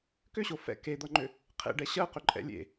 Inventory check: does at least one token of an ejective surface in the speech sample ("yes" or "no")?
yes